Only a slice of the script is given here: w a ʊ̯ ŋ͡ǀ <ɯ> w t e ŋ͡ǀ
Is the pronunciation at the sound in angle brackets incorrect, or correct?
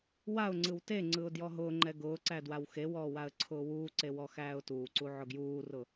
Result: correct